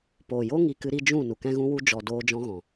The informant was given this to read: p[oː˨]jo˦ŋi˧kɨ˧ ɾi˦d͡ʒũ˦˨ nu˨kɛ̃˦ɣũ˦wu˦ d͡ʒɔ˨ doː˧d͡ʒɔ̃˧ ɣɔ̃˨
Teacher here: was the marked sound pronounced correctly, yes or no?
yes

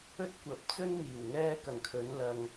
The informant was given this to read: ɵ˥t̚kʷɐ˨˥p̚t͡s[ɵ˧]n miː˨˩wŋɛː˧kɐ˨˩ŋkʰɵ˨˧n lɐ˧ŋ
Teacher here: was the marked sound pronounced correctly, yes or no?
no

